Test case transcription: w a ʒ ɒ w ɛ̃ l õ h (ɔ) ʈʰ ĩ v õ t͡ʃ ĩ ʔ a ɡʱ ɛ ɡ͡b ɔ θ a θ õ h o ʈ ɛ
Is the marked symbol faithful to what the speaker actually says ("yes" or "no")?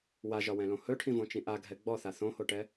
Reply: no